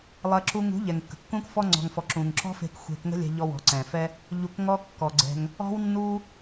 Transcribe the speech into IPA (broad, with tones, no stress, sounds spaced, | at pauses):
lˠ ɐ˧ ǁ u˧ ŋ ṳ˨˦ ʎ ɛ˨ ŋ kː ə̤˨ kː ũ˦ k f ɔ˦ ŋ͡ǀ ɔ̤˨ ŋ f ɔ˨ ǁ ũ˨ ŋ ǁ ɔ̤˦ f e̤˧ k xʷ e̤˧ k ŋ ə̤˦ lʲ ɛ̤˧ ʎ ɔ˧ w ɔ̤˨ ǀ ɛ̃˨ f ɛ˦ | ʎ u˧ k ŋ ɔ˦ kː ɔ˨ ɡ͡ǀ ɛ̤˧ ŋ | ɔ̤˦ w nː u˦